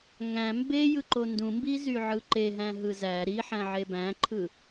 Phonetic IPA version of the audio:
ŋ æ̃ m b e j ɯ ǃ o n d ũ m b i z y ʕ ɯ ǃ e ɦ æ̃ ɦ ɯ z æ ɾ i ħ æ̃ ʕ e b æ̃ ǃʰ ɯ

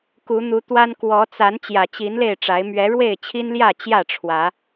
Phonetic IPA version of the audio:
k u˨˦ n̪ u˨˦ t̪ w a˦ n k w ɔ˨˦ t͡s a˨˦ n t͡ɕ j ä˨˩ t͡ɕ i˨˦ n l e˥˨ ɪ̯ ʈ͡ʂ a˨˦ ɪ̯ m ɥ ɛ˨˦ ɻ w e˥˨ ɪ̯ t͡ɕʰ i˦ n l j ä˥˨ t͡ɕ j ä˥˨ ʈ͡ʂʰ w ä˨˦

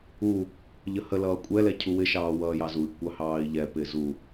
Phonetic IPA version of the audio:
u | ʎ ə h ə l ʌː kʷʼ ɛ l ɛ cʰ u w ɪ ʃ ɑː w ʌː j ɑ z u i̯ kʷ ɑ h ɑː i̯ ʎ ɛ p ɪː z u

